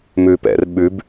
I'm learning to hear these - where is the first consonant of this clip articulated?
lips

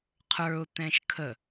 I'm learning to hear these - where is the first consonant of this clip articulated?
uvula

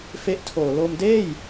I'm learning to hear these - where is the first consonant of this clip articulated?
lips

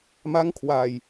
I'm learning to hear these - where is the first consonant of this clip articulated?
lips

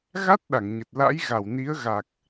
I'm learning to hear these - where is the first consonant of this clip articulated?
velum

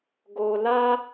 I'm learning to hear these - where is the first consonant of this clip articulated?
velum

